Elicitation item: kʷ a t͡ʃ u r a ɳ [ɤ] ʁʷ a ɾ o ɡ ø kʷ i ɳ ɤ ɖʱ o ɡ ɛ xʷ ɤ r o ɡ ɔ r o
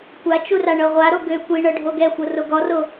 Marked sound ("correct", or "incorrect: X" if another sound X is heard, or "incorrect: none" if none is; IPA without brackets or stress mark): correct